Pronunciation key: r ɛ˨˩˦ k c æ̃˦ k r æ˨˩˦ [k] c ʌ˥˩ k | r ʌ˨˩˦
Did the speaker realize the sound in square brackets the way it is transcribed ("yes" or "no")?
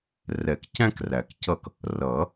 yes